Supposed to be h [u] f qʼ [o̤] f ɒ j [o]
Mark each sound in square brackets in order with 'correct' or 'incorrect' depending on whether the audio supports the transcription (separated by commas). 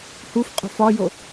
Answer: correct, correct, correct